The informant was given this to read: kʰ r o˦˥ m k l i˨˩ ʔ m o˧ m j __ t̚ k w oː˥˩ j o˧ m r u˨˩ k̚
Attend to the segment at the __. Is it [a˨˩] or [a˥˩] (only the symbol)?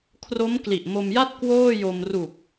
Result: a˥˩